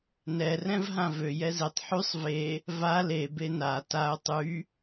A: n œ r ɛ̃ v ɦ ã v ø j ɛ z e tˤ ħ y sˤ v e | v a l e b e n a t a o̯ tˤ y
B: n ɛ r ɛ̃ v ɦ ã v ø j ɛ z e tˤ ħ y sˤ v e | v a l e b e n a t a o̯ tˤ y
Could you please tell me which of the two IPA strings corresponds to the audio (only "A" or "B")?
B